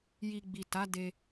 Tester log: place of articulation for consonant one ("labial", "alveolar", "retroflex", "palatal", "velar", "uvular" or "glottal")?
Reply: palatal